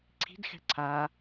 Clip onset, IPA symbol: ǀʰ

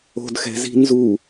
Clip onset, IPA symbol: o̤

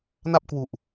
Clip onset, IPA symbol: n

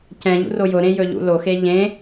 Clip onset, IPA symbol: c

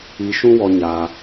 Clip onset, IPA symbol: i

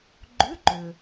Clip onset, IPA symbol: ɡ͡ǃ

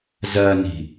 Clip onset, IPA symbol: z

